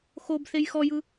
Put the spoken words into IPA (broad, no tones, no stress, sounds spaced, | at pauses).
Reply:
x o b θ e j x ɔ j ɯ